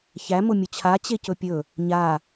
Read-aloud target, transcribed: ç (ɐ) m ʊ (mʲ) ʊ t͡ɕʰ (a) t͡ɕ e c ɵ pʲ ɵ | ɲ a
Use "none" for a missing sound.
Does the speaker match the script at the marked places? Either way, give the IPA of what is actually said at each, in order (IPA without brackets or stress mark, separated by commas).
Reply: æ, mʲ, a